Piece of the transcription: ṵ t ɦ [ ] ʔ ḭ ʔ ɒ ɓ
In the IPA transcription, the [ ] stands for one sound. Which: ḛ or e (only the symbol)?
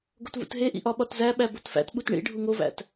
e